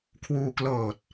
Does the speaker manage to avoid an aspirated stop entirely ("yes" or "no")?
no